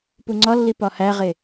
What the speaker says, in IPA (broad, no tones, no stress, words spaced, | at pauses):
puŋ͡ǀɒlːi pɒhæʁe